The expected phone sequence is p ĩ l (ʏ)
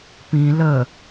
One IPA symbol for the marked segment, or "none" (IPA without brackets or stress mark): ə